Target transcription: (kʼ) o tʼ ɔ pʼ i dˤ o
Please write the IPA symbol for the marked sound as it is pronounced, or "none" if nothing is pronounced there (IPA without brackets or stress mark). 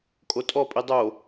kʼ